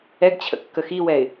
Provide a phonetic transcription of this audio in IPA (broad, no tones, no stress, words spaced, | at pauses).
ɛɡt͡ɕʰə̰ kːəxiwɛɪ̯